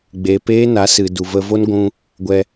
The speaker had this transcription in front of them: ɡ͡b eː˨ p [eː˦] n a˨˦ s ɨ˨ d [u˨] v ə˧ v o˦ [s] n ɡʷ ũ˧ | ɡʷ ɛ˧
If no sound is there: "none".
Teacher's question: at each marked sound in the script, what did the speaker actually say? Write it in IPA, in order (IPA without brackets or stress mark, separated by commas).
eː˦, u˨, none